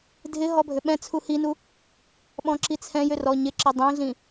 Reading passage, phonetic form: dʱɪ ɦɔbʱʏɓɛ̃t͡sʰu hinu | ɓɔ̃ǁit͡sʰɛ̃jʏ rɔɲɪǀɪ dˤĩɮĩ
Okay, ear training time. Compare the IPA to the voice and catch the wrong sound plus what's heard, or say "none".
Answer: ǀ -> ǁ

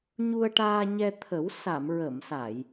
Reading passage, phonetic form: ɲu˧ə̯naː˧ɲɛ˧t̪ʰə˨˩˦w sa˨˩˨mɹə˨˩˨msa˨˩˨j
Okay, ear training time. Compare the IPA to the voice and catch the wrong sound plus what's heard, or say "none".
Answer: n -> ʈ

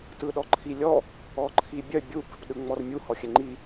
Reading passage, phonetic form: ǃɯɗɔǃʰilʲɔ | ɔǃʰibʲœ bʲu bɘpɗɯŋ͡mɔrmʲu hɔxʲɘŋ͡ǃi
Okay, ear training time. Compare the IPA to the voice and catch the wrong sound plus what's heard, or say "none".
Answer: ǃ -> t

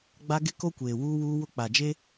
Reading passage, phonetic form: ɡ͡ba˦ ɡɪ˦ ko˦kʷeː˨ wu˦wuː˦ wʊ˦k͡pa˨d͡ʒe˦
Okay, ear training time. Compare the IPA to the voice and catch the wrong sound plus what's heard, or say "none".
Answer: u˦ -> uː˦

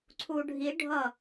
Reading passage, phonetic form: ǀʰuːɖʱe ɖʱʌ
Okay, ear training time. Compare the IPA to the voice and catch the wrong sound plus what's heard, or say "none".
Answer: e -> i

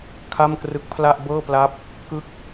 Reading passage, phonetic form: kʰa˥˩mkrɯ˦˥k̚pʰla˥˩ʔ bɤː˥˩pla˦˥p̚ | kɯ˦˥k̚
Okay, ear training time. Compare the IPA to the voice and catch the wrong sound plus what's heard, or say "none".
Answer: none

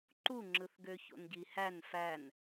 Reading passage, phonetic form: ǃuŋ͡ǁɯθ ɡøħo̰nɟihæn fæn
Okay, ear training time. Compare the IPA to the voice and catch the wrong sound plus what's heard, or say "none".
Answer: ħ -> ç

